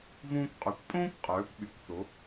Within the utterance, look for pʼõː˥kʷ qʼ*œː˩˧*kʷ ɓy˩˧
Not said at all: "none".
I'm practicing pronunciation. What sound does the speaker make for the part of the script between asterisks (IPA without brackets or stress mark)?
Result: œː˩˧